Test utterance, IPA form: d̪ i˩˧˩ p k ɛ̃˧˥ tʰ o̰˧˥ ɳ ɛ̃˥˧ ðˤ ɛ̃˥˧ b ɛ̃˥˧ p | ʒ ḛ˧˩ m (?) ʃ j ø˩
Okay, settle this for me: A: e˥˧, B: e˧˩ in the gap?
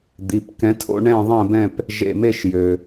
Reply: A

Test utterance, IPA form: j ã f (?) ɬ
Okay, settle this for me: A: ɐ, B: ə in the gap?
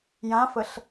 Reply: B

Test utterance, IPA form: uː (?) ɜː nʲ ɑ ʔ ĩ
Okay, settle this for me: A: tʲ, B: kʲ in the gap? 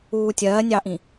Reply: A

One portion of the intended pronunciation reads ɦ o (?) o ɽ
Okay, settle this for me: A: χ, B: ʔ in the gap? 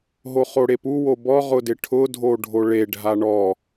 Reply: A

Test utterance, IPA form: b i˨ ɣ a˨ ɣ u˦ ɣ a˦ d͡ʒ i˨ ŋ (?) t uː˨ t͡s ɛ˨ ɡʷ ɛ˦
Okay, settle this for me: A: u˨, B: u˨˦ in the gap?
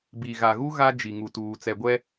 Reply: A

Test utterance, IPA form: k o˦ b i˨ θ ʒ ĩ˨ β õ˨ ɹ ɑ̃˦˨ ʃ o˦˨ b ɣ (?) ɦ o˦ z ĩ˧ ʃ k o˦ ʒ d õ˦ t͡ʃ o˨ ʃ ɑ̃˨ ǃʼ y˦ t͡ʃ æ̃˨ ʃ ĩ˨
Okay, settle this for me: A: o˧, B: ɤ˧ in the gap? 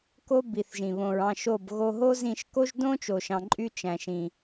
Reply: A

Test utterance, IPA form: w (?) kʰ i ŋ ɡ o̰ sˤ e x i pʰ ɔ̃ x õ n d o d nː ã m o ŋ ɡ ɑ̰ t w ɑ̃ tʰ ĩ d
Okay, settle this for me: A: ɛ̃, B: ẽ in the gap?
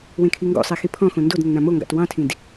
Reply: B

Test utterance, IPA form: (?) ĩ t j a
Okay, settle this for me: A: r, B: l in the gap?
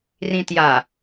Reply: A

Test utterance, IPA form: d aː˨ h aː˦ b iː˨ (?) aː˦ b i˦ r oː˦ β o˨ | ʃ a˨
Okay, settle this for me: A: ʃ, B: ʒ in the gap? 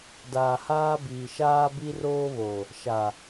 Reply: A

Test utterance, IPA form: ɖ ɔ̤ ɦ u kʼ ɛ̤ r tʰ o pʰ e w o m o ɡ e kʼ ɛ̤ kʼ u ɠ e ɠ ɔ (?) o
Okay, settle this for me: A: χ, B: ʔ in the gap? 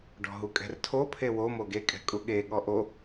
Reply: B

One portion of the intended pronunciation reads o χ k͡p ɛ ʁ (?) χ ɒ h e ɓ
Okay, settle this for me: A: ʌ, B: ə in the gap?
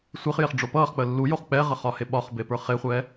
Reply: A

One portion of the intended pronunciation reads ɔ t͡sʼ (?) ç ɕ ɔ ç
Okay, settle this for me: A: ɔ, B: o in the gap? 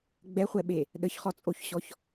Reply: B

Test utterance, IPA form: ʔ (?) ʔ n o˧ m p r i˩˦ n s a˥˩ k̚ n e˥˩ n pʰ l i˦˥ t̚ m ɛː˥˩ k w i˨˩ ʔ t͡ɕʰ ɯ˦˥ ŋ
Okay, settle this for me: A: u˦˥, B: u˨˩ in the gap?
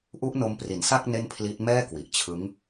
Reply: A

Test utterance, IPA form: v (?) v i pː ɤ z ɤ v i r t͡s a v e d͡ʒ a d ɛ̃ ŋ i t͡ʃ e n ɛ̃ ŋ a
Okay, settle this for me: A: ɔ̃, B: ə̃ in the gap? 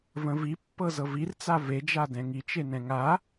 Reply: B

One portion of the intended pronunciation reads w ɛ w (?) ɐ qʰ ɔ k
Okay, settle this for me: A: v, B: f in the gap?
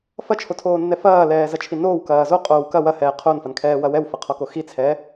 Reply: B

